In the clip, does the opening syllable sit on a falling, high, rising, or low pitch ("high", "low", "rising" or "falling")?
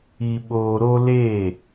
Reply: low